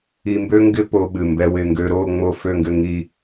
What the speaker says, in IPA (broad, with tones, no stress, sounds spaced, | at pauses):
i˧ m b ø˥ ŋ ɡ ɪ˥ p o˧ ɓ ɨ˧˩ m b ɛ˥ w ɪ˥˧ ŋ ɡ ø˥ ɾ o˥˧ ŋ͡m o˥ f ø˥˧ ŋ ɡ ɘ˥˧ ŋ i˥˧